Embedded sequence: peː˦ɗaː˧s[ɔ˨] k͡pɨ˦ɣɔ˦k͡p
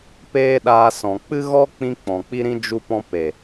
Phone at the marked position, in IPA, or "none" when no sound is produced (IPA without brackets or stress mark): ɔ̃˨